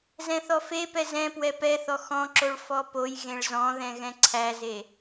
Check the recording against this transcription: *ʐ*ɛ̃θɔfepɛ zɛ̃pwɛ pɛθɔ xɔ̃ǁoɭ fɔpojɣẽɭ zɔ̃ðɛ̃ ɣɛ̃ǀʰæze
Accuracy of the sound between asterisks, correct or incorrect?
incorrect